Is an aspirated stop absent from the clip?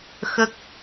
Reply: yes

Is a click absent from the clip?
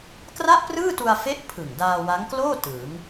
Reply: yes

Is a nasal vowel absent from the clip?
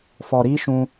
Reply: no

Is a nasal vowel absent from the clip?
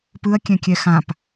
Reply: no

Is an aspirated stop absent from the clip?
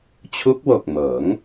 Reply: no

